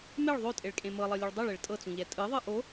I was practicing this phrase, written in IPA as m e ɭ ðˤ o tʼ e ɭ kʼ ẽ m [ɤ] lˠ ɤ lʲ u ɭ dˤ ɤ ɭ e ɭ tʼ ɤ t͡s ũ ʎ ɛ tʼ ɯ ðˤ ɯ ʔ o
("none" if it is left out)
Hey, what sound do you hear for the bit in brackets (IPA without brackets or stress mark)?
ɤ